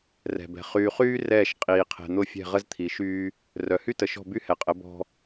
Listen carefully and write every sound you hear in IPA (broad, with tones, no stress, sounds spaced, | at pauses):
r ɛ̤˨ b ɛ̤˨ χ yː˨ χ yː˦ r ɛː˦˨ ʃ qʼ iː˨ qʰ ɛ̤˨ n̪ ʊ˦˨ fʲ ɛ̤˦˨ ʁ ə˦ z t̪ʰ i˨ ʃ yː˦ | r œ˨ h y˦ t ə˨ ʃ ɔ̤˦˨ b y˦ h ɛ˨ qʼ ə˨˦ b ɔ̤˦